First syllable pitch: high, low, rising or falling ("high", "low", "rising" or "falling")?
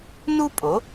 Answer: high